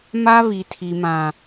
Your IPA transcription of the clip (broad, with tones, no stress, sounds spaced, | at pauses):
m a˦ β i˨ tʰ i˨ m ã˨